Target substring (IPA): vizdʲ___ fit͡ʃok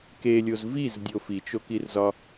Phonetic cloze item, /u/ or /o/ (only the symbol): o